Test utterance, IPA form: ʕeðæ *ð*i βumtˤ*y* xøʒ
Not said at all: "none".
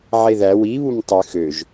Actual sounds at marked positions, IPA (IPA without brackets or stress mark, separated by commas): w, y